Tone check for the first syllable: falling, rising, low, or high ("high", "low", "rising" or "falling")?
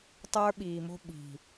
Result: high